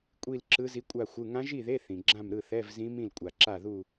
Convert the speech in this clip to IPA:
kʷʼi˥˧lǁɯ˧˥zi˧˥ kʷʼa˥˧xʷɯ˧˥˧ ŋã˧˥ʒi˥˩ðe˧˥˧ θĩ˨ ɡ͡ǁã˥˩mɾɯ˥˩ θɛ˧˥˧vzĩ˧˥ mĩ˥˩lkʷʼa˨ǁa˥˩ðu˥˧

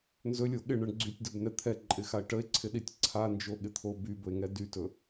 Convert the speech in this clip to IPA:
nzɵlʲo ɠɪɳəɳ ɡ͡ǀytʲdɵbnɛ t̪ʰɛǃʼɪxae̯ ʈəe̯ǀʰɪɗitʲ ǀʰand͡ʒoɠɪt̪ʰo bybɵe̯ŋɛ dytɵ

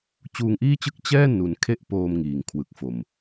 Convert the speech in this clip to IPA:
t͡ɕuː˧ŋʔiː˥˩t͡ɕɯ˥˩k̚ t͡ɕɛː˥˩nu˩˦n kʰe˥˩ʔpoː˧m ŋiː˨˩ŋkʰwɯ˨˩k̚fo˨˩m

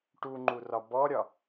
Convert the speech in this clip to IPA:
ʈuŋ͡ǃurɒ bɔɾʲɒ

